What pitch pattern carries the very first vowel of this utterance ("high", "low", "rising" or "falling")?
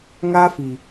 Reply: high